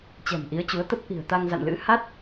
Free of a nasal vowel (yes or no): yes